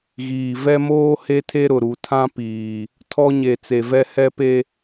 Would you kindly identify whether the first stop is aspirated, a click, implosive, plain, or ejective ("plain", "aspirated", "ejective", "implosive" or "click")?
aspirated